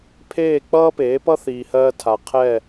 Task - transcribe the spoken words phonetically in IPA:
pʰ eː˦˨ k͡p ʌː˦ p eː˨˦ p ʌ˦ θ iː˨ h ɜː˧ tʰ a˨ qʰ ɛ˦˨

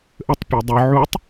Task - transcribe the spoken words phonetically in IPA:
ʔ ə tˤ pʲ ə˞ dˤ ə˞ ʕ u tˤ

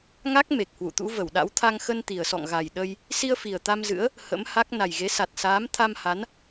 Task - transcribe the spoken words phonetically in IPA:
ŋ a˦˥ k̚ m e˨˩ k̚ h w ṵ˧˨ t̪ ṵ˧˥ v ə˧˩ w ɗ a̰˧˥ w t̪ʰ a˧ ŋ x ə˧ n t̪ i˨˩ ə̯ s ɔ̰˧˨ ŋ ɣ a˨˩ j ɗ ə˧ j | s i˧ ə̯ f i˨˩ ə̯ t̪ a˧ m z ɨ̰˧˥ ə̯ | h ə̰˧˥ m h a˦˥ k̚ n a˨˩ j ɣ e˨˦ s a˨˩ t̚ s aː˨˦ m t̪ʰ a˧ m h a˨˦ n

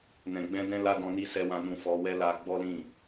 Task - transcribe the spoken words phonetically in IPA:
n ɛ̃˨ ɡ͡b ɛ̃˧ d ɛ̃˦ l a˦ d ɔ̃˧ n i˦ s ɛ˧ w ã˧ n ũ˧ f ɔ˧ w ɛ˦ l a˧ ɡ͡b ɔ˦ l ĩ˦˨

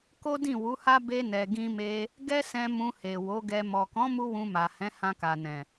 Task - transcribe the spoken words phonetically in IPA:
k o˦ d ĩ˦˨ w u˨˦ h a˦ b e˧ n ɛ˨ ɡ ĩ˧ m e˧ | ɡ ɛ˦ s ɛ̃˧ m ũ˧ h e˨ w o˨˦ ɡ ɛ˧ m ɔ˨ k ɔ̃˨˦ m u˦ w ũ˧ m a˨ h ɛ̃˨˦ h ã˧ k a˨ n ɛ̃˨

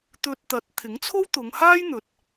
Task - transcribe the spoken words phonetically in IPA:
t̪ ɵ˧ t̚ t̪ ɐ˨˥ t̚ t̪ʰ ɪ˨˥ ŋ t͡sʰ o˥ w t̪ ʊ˨˧ ŋ h aː˥ j n̪ ɵ˨ t̚

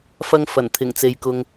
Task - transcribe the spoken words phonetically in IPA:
f ɐ˧ ŋ f ɐ˨˩ n t̪ʰ ɪ˨˩ ŋ t͡s e˨ j k ʊ˧ ŋ

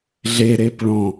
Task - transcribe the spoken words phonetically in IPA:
ɮ e ɾ e p ɭ ɔ̃

